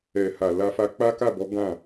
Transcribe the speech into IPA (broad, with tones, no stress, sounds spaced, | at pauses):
ɛ˨ h a˨ l a˧ f a˧ k͡p a˦ k a˦˨ b ɔ˨˦ ɡ ã˦˨